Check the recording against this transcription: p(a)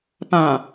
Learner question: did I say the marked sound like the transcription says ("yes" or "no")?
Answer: no